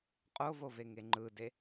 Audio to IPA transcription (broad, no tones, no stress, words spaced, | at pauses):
qʼovoveŋe ŋ͡ǃɯde